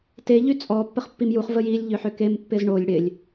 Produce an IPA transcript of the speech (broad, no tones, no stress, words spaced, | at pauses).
te ʎyt͡sʼɔ pːəχpːimjuχ vəjilʲ ʎʏħʏkem pːɪzɳolʲ ɽɪlʲ